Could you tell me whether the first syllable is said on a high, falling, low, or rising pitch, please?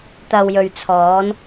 low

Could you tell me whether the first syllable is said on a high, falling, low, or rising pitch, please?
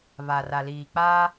low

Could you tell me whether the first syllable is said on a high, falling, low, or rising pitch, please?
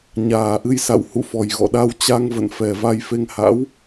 low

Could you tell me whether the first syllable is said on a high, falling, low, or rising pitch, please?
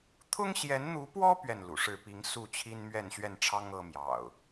high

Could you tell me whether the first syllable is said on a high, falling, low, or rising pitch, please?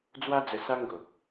high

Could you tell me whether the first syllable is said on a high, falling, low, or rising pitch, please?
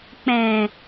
low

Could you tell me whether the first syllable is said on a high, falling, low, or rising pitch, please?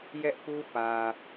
high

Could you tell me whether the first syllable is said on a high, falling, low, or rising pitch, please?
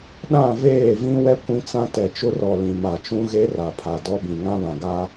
falling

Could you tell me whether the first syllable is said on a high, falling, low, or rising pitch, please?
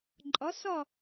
rising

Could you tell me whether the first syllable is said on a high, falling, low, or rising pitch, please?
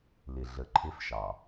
low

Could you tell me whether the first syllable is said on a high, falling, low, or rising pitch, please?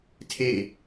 falling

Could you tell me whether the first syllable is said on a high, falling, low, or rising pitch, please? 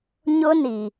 high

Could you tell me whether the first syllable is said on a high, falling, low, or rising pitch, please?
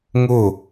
falling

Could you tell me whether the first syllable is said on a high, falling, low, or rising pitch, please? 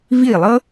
falling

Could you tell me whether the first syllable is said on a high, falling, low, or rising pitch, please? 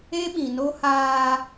high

